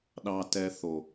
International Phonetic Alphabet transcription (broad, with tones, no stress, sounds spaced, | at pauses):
ɗ ɑ˦ t ɛ˦ θ o˨